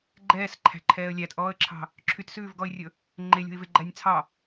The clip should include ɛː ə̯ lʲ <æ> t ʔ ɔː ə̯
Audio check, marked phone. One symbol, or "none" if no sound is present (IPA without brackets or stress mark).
æ